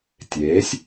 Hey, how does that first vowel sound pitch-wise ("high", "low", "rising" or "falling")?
rising